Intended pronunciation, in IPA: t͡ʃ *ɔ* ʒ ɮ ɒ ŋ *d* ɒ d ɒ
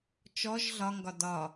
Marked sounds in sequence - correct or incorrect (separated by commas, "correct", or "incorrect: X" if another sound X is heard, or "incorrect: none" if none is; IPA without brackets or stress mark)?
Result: correct, incorrect: ɡ